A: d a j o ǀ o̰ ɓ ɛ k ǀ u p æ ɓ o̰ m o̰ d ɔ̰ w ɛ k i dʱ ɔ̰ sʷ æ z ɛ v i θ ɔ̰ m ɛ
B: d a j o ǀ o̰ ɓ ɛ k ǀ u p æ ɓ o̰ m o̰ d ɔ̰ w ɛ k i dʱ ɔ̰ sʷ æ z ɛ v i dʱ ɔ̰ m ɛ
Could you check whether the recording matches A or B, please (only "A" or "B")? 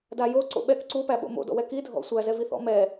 A